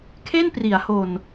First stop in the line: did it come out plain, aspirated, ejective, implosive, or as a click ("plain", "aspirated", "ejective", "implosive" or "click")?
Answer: aspirated